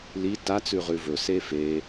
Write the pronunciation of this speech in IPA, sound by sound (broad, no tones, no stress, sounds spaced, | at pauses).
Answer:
l i t a t͡s ʉ ʁ ʉ v ɵ s e f e